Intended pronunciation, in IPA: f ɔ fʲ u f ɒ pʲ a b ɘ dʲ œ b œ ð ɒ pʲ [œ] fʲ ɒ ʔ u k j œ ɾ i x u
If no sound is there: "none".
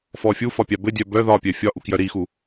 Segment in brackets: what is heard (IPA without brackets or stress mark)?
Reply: œ